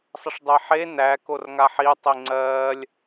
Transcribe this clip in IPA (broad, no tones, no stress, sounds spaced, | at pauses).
sˤ ə ʂ dˤ e ħ e n æ k o r ŋ a ħ i tˤ i ŋ͡ǀ ɜ lʲ